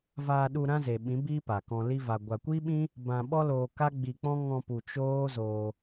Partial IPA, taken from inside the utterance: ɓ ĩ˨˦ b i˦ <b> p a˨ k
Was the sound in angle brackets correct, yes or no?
no